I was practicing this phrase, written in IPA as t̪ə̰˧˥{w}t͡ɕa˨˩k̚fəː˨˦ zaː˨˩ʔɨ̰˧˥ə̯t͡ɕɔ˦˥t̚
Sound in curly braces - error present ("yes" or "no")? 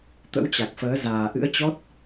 no